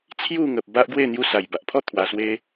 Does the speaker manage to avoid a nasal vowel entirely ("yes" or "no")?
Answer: yes